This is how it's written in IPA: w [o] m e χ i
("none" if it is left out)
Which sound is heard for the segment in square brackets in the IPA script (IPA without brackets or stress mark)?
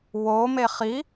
o